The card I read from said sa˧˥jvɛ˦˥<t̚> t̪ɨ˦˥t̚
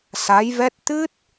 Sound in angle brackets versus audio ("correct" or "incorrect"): correct